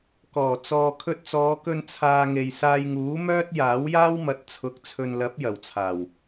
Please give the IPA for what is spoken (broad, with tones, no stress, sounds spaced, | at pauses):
k ɔː˨˩ t͡s ɔː˨ kʰ ɵ˧ t̚ t͡s ɔː˨˧ k ɵ˧ n t͡sʰ aː˧ ŋ e˨ j s aː˧ j ŋ uː˨˥ m œː˥ t̚ j aː˨˥ w j aː˥ w m ɐ˨ t̚ t͡sʰ ʊ˨˥ k̚ t͡sʰ ɵ˨ n l ɐ˨˥ p̚ j ɐ˨˩ w t͡sʰ aː˨˩ w